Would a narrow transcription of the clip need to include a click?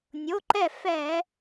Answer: yes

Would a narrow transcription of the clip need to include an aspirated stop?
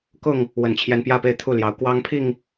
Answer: yes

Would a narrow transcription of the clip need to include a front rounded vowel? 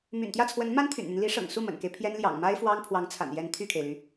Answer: yes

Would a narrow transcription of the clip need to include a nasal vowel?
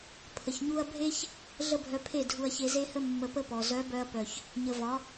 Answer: no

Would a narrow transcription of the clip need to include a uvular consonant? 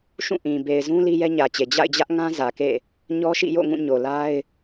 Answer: no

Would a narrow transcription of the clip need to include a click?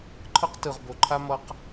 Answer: yes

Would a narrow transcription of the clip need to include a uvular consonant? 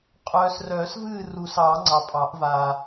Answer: yes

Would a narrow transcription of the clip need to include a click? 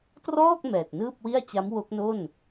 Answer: no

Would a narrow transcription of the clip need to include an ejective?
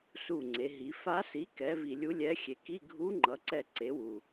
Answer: no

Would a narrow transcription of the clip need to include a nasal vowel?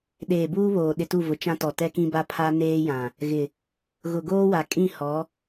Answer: yes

